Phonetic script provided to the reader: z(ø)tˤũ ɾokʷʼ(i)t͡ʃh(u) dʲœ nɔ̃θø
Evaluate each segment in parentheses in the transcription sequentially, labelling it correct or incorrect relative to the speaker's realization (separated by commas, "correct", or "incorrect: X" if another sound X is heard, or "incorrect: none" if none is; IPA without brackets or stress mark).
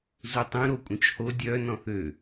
incorrect: u, incorrect: ĩ, incorrect: o